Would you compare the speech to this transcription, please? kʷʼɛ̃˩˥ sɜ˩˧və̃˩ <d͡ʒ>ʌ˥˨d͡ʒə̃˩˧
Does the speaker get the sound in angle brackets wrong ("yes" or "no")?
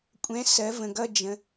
yes